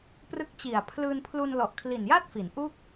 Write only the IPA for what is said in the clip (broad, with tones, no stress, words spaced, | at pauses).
prɯ˦˥k̚t͡ɕi˨˩a̯ pʰlɯː˧npʰlu˧n lɔ˨˩ʔkʰli˨˩nja˥˩t̚ fi˩˦nʔu˥˩k̚